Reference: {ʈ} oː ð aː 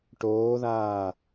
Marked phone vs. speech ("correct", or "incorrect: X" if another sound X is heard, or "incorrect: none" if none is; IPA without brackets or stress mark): correct